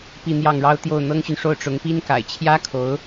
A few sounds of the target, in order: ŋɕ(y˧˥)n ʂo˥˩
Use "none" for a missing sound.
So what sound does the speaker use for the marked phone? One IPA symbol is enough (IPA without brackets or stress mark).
y˨